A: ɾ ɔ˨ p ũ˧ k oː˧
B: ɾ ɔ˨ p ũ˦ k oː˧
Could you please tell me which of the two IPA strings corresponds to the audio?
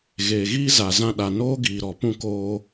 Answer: A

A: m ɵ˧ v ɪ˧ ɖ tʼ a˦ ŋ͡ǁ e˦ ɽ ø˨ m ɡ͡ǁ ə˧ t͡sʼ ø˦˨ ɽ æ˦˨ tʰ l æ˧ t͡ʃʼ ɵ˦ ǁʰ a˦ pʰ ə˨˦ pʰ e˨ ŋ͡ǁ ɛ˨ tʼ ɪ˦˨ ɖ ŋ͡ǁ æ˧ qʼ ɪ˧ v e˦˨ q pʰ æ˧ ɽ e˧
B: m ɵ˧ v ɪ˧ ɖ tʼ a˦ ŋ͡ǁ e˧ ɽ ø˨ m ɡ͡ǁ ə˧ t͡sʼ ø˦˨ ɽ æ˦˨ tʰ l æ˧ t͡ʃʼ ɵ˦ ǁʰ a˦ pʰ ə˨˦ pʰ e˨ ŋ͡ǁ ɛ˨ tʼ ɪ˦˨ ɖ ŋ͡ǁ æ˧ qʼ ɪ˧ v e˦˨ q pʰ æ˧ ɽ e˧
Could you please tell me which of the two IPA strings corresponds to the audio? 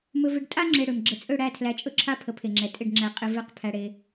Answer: B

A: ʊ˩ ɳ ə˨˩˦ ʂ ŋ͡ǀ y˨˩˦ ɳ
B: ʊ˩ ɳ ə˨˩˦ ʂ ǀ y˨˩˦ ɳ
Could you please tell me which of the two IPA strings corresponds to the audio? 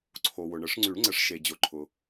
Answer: A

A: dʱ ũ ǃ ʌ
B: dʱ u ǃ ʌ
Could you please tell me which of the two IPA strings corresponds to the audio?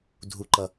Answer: B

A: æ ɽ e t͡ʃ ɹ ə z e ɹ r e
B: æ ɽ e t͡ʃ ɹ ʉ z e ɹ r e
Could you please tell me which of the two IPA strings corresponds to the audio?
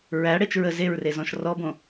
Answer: A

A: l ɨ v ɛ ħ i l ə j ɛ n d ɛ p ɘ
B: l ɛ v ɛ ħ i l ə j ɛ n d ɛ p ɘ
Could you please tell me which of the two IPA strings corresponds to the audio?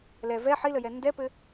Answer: B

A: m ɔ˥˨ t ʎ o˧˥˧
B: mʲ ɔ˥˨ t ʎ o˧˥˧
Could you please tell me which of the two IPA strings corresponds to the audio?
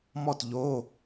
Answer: A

